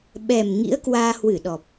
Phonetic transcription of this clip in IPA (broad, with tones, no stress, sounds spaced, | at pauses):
ɓ ɛ˨˩ m ŋ ḭ˧˥ ə̯ k w aː˧ h w ɨ˧˩ ɗ ɔ˨˩ p̚